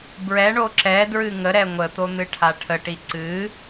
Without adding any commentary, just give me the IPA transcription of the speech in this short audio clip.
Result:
b ɹ ɛ ɳ o ǁ ɛ d ɹ ɨ ŋ ə ɾ ɛ ŋʷ ə t̪ o n̪ ɨ ʈʰ a ʈʰ ə ʈ i ǀ ɨ

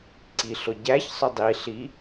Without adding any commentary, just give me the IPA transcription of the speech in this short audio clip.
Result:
ǀ i ɬ ʊ ɟ æ ç sˤ ʊ dˤ i ɬ i

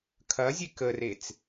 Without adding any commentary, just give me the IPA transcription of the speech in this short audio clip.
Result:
kʰ ɐ zʲ e k ə r e t͡s

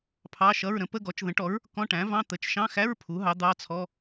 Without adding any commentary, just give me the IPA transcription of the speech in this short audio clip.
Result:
pʰ ɑ˧˥˧ ʃ ʌ˧˥˧ ɹ ɾ ə̃˩˥ p ə˧˥˧ ɡ ɔ˩˥ t͡ʃ ð ə̃˩˥ ʈ ɔ˩˥ ɹ | k ɔ̃˧˥˧ ʈ æ̃˩˥ v ɑ̃˧˥˧ t̪ ə˩˥ t͡ʃ ʃ ɑ̃˧˥˧ x æ˧˥˧ ɹ pʰ u˩˥ ɦ ɑ˩˥ d̪ ɑ˧˥˧ t͡sʰ ɔ˧˥˧

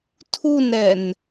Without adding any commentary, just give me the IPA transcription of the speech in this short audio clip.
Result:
tʰ u n ɾ ɛ n

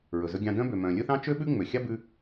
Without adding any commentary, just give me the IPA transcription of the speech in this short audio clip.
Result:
ɹ ɵ˩ z ɵ˧ ɡʲ ɑ̃˧ d œ̃˥ b ø˩ m œ̃˩ lʲ ɵ˥ θ ɑ̃˥ t͡ʃ ø˥ ɓ ʉ˥ ŋ͡m ø˩ xʲ ɑ˥ b ʉ˧

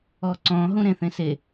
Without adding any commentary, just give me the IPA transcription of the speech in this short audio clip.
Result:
ɔ ǀ ɔ̃ ɦ ũ ɾ ẽ θ ẽ s e

